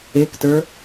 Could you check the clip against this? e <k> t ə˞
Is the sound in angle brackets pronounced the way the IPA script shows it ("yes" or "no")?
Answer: yes